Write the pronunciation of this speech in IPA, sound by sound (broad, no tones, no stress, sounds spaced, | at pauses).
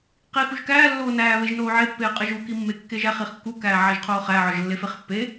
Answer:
q i x u ʒ k æː lː oː n æː β e ʒ n oː ʕ e pː eː qʼ e ʒ u k i mː e kː e ʒ æ χ i χ kː u k æː ʕ æ ʒ qʰ oː χ æ ʕ ɒ ʒ lː e f e χ pː e